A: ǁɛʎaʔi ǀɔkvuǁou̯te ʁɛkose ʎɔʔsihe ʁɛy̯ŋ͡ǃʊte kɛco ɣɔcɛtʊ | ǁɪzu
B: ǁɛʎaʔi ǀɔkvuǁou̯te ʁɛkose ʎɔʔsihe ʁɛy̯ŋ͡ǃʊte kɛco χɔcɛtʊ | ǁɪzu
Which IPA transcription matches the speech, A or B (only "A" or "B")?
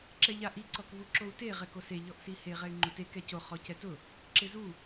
B